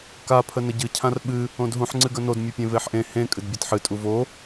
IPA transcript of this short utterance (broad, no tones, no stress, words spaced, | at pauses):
ka pʰənəɟɨ cʰãrɓɨ | õdɦũħ ŋ͡ǀɨɡənod mʲɨpʲẽveħʔẽ hẽ kʼɨdbʲatħɨ tʼuvo